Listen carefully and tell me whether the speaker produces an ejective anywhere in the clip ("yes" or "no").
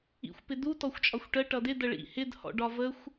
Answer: yes